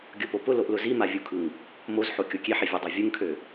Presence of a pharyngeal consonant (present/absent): present